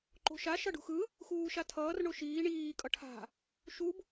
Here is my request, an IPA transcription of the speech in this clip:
ǃ o̤ ʃ a ʃ ʌ ɖ ṳ x ɯ | x uː ʃ a tʰ ʌː r ɳ o ʃ iː ɳ iː kʼ ʌ ʈʰ a̤ | ʃ u b

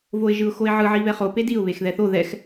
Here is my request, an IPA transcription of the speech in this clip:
v o ɪ̯ ʒ ɯ ʊ̯ x o ɪ̯ ʕ ɯ ʕ i β ɛ χ o p e d i ʊ̯ β e x ð ɛ θ o ð ɛ x

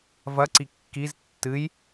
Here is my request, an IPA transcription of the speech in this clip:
v ɐ ǀ i kː i z tː ɨ j

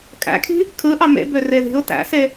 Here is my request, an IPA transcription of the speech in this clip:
kʼ æ̰ kʰ i̤ | kʰ ɯ ʔ ɑ m ḛ b ø r e ð i̤ ʊ̯ t æ̰ s e

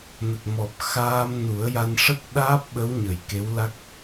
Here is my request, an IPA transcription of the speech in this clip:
n ə˨˩ k̚ m ɔ˨˩ p̚ x aː˧ m n u˨˩˦ ə̯ j a˧ n ʂ ə˦˥ k̚ ɗ aː˦˥ p̚ ɓ ə˧˥ w ɲ ə˨˩ j k e˧˥ w l a˦˥ k̚

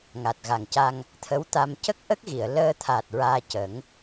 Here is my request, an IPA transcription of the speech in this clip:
ŋ a˨˩ t̚ ɣ a˨˩ ŋ c a˧ ŋ | t̪ʰ ə˧˥ w t̪ a˧ m c ə˦˥ k̚ ʔ ə˦˥ k̚ ɣ i˨˩˨ ə̯ l əː˧ t̪ʰ a˨˩ t̚ ɹ aː˧ c ə˨˩˦ ŋ

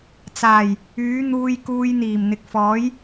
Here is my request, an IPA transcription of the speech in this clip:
t͡s aː˨˩ j | yː˨˥ n̪ uː˧ j k uː˧ j n̪ iː˨˩ m n̪ ɪ˨ k̚ f ɔː˨˥ j

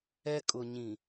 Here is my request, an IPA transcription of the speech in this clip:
ɛ˦ kʼ ʊ˨ ɲ ĩ˨

